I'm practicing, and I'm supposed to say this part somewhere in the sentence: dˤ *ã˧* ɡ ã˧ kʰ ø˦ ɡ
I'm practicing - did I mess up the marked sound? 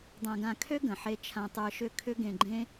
no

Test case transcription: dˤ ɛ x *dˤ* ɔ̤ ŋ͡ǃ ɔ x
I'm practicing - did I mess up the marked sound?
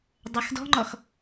yes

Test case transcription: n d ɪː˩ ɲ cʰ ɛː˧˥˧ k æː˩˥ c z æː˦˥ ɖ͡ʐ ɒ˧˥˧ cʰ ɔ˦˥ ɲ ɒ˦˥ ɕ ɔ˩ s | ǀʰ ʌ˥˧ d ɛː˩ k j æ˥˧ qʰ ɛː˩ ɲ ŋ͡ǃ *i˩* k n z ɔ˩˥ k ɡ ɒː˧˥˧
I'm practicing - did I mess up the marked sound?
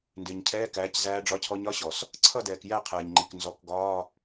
no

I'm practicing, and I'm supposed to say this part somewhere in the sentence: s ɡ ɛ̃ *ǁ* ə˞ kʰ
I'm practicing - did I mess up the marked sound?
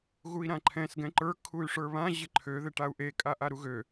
yes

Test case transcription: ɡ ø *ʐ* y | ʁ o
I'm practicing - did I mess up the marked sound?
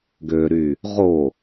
yes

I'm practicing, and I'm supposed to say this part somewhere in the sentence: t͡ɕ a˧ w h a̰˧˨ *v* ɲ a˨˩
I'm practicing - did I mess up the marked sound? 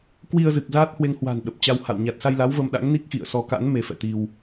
yes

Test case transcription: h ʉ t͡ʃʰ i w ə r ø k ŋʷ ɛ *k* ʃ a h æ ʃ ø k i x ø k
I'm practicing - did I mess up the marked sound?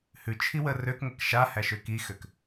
no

